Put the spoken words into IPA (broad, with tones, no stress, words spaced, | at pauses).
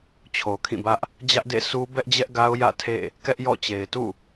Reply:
t͡ɕʰo˨kʰĩ˦˨bä˦ʔ | d͡ʑä˦ʔdḛ˦˨ sʰu˦ bɛ˦ʔd͡ʑɛ˦ʔɡa˦ʊ̯ jä̰˦˨tʰḛ˦˨ | kɛ˦ʔjɔ̰˦˨t͡ɕe˨ɪ̯ tṵ˦˨